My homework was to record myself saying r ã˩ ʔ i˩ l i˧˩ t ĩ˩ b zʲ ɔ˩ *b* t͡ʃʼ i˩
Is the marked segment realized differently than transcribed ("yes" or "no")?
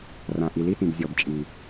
no